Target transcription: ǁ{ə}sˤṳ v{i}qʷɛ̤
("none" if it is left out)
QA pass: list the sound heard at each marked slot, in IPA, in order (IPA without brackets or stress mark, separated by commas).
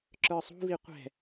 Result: ə˞, i